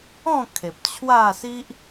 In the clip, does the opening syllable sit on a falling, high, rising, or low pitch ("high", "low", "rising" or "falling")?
falling